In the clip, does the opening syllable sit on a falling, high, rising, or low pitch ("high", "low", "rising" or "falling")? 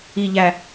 low